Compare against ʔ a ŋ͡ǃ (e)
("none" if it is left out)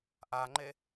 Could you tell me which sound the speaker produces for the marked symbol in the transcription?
e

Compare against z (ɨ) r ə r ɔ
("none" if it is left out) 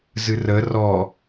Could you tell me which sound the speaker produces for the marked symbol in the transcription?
ɨ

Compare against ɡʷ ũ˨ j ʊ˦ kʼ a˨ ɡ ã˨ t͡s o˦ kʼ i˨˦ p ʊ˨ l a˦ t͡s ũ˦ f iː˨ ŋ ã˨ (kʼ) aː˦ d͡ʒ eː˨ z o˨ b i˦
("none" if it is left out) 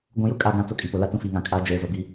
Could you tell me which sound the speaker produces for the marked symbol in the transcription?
kʼ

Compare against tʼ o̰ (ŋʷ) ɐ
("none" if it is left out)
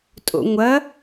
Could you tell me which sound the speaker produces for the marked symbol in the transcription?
ŋʷ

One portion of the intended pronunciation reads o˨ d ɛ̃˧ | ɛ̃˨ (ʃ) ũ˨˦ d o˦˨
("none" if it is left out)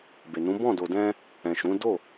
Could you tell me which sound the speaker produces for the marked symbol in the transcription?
ʃ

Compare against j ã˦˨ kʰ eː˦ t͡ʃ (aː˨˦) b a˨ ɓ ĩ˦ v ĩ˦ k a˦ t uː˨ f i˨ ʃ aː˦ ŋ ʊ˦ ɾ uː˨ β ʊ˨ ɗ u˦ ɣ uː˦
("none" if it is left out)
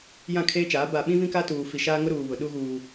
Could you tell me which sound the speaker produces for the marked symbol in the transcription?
aː˨˦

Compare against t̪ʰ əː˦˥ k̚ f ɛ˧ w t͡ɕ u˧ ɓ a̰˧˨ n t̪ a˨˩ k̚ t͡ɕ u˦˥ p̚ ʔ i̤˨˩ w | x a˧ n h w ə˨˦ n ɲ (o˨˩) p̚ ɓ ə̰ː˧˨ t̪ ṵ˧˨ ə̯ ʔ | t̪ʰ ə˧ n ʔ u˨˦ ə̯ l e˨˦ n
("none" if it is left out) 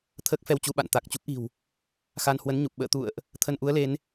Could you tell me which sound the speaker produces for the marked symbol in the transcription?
u˨˩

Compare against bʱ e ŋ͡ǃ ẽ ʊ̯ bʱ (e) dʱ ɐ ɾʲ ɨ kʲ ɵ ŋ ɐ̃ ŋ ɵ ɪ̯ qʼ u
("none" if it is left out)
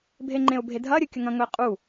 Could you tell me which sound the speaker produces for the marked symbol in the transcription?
e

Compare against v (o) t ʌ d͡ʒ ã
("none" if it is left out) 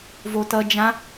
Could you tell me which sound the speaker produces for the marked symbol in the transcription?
o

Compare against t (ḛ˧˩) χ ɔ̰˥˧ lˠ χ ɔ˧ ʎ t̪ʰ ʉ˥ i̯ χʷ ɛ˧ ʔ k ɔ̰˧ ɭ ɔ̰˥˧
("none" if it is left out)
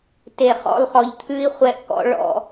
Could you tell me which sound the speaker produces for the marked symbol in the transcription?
e˧˩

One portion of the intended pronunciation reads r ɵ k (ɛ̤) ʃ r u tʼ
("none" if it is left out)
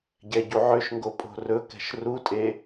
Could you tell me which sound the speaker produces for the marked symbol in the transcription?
ɛ̤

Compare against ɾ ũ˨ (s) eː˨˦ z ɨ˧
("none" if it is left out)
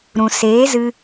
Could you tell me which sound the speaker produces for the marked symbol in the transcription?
s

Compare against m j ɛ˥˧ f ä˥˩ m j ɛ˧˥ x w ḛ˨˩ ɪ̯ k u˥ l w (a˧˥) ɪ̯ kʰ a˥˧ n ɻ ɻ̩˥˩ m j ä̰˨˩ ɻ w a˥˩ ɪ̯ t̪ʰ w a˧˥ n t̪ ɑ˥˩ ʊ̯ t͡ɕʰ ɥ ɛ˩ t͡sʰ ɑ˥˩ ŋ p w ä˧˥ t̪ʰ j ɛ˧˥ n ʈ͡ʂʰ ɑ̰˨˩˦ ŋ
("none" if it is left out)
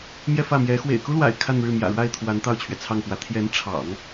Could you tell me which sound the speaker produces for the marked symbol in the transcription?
a̰˨˩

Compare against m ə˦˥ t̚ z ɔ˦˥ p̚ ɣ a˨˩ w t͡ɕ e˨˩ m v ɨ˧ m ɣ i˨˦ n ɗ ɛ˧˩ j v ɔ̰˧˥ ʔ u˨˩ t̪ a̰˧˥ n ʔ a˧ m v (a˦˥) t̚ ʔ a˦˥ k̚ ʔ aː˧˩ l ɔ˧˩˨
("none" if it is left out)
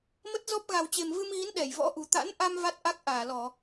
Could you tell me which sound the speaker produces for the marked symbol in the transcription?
a˦˥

